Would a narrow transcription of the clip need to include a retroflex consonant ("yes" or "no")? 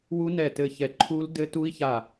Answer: no